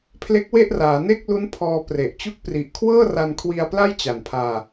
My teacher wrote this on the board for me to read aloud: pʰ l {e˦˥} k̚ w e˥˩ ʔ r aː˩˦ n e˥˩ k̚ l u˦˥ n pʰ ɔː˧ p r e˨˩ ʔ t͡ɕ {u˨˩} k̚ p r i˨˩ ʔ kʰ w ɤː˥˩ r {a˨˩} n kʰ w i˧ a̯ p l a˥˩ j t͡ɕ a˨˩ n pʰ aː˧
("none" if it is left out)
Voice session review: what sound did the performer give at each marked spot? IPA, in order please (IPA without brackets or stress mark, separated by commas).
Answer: e˦˥, u˥˩, a˧